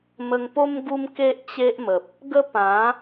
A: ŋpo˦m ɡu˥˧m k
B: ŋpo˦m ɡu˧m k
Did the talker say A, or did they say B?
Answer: B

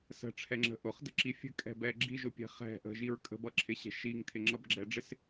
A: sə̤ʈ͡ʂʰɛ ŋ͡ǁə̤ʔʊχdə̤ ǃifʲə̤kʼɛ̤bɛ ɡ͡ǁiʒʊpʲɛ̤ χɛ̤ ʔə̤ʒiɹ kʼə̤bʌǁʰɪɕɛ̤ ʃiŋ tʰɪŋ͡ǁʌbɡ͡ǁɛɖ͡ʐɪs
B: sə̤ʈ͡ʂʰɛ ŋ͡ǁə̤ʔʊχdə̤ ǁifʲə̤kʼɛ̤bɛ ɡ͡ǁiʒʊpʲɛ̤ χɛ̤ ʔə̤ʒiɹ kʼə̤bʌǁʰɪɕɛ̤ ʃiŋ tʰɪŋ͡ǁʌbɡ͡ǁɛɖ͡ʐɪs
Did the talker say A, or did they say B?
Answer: B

